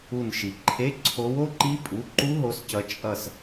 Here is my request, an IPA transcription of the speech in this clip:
u˧˩nʃi˩ǃʰe˧˥˧ ǀʰo˨˦wo˩˧˩ǃi˦˥ pʼu˩˧˩ǃu˦˥ɦo˨˦scʌ˨˦ t͡ʃʼʌ˧˩s

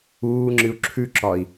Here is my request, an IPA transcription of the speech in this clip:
uːŋ͡ǁɨu̯ ǁʰʉǁɒi̯

